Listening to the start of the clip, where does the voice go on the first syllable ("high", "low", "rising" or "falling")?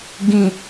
low